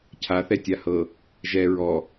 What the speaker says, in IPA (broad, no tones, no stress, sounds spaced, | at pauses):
cʰ a θ ɛ tʲ a h ɤ | ʒ ɛ ɹ ɔ